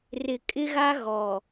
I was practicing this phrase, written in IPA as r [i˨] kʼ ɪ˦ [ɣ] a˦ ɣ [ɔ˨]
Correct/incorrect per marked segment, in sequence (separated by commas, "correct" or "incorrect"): incorrect, correct, correct